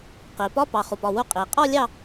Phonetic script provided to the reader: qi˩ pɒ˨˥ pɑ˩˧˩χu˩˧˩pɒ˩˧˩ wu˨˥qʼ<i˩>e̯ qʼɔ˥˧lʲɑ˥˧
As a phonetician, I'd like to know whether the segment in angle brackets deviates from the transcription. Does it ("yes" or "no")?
no